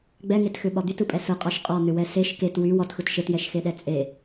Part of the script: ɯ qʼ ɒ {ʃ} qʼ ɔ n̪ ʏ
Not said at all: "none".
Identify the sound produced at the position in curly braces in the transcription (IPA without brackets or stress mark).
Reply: ʃ